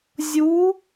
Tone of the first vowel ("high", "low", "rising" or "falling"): rising